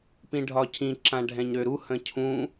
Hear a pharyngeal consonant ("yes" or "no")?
no